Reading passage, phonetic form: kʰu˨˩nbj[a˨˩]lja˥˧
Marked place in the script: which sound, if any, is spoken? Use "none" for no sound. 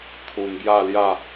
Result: a˥˧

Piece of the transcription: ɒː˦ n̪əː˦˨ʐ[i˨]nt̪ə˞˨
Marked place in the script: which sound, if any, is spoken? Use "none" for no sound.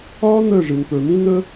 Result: i˨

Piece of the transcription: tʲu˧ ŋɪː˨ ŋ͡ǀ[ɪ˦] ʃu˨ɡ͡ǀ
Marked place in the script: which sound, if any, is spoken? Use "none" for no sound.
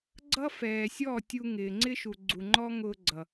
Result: ɪ˦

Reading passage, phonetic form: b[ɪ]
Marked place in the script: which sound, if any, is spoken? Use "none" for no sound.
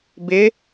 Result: ɪ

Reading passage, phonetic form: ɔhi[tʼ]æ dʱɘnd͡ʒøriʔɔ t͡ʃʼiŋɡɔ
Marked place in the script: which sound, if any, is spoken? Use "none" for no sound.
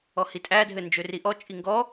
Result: tʼ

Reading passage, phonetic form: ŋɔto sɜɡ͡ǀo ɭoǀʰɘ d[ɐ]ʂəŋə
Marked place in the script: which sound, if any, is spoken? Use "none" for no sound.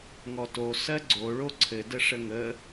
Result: ə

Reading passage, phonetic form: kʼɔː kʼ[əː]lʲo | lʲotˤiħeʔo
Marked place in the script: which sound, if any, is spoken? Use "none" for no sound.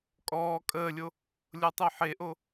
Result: əː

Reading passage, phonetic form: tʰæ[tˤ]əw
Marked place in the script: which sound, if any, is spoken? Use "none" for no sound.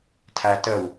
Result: t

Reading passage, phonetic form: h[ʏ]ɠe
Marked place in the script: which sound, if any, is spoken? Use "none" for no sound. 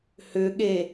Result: ʏ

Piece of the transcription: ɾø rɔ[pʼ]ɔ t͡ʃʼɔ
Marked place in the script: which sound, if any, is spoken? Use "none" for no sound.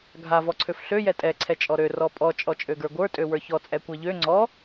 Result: pʼ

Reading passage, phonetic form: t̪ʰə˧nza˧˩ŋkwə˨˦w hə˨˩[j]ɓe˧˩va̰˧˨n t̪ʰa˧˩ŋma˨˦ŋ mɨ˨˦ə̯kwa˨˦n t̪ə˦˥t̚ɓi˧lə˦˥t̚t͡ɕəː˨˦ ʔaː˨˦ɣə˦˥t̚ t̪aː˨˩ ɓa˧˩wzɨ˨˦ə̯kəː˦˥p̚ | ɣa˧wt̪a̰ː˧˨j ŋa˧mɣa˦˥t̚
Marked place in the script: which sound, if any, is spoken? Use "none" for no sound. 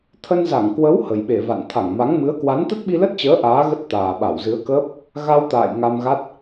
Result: j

